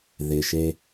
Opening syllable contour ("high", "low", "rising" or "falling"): low